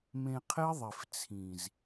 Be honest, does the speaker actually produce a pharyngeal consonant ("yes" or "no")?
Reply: no